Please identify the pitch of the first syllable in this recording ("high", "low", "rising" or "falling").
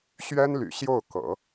high